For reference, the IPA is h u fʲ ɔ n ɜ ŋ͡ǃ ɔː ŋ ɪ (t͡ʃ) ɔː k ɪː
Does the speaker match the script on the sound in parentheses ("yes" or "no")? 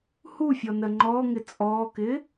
no